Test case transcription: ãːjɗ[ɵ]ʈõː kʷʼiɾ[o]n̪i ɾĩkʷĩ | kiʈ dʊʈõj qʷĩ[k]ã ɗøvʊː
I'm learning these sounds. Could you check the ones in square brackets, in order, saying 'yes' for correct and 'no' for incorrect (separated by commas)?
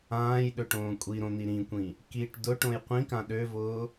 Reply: yes, no, yes